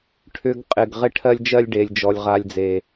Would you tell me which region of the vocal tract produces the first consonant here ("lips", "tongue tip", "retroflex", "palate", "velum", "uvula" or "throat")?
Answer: retroflex